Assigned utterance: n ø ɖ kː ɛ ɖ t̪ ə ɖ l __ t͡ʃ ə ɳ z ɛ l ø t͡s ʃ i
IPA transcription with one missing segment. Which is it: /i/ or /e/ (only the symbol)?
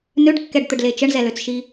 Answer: e